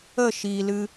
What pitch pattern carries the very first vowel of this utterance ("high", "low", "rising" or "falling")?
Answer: falling